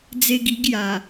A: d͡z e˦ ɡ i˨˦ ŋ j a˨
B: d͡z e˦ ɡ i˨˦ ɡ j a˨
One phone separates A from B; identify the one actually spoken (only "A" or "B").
B